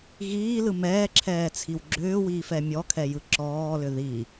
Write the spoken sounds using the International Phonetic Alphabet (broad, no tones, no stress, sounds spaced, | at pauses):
ɣ iː l ɯ m ɛː ǁʰ ɛː t͡sʰ i w ɡ͡ǁ ʏː w iː f ɛ mʲ ɔ kʰ ɛ j ɯ ǁ ɔː l ʏ ð i